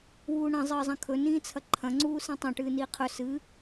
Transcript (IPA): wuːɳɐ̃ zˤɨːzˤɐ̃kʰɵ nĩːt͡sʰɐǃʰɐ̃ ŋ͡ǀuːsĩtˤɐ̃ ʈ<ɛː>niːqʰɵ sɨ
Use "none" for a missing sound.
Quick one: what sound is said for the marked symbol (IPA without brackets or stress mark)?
ɨː